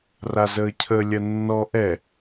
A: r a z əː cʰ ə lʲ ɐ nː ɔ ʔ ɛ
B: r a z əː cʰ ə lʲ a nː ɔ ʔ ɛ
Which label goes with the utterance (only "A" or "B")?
A